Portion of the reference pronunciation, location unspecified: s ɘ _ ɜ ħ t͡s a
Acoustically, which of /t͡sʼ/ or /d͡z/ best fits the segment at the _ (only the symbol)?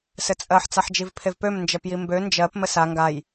t͡sʼ